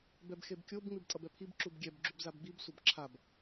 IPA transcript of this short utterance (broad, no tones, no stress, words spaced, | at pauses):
bɛbxebkʲob ŋ͡mibtʼʌbɛpʰib ǁubɡʲɛb ɡ͡ǁubzabɡ͡bib sʷʌbǁʰab